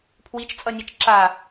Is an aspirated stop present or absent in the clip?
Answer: present